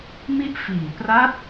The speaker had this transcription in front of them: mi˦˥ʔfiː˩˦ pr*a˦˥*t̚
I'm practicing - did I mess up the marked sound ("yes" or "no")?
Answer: no